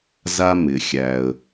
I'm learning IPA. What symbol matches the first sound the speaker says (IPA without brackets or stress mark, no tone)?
z